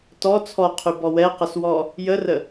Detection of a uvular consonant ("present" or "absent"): present